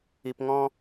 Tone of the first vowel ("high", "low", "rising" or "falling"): low